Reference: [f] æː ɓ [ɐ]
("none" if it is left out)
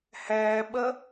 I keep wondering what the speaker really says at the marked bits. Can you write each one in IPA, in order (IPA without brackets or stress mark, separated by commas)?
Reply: h, ɐ